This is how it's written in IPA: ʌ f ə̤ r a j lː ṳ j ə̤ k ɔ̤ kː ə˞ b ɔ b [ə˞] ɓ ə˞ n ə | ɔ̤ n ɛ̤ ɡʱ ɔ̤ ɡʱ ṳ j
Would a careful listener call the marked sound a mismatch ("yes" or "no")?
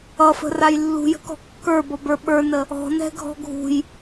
no